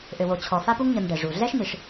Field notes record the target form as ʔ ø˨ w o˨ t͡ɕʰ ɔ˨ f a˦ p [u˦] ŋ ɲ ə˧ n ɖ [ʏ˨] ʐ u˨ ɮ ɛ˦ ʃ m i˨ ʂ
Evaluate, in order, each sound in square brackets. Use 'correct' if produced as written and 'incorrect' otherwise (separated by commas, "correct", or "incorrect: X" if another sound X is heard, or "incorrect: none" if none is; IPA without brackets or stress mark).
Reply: correct, incorrect: ɛ˨